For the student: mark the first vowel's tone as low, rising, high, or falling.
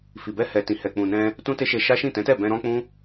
low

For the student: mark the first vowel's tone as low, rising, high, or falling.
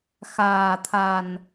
low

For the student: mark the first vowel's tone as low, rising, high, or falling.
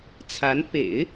rising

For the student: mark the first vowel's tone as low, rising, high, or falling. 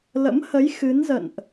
rising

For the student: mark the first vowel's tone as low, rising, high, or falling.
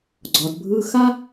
low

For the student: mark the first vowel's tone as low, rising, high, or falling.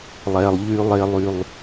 low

